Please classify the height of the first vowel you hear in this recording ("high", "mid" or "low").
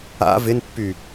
low